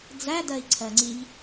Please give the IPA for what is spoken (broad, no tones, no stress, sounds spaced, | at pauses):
d͡z æ d ɜ i̯ ǀʰ ɜ ŋ͡ǀ i ʎ